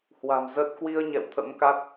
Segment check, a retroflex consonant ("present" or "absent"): absent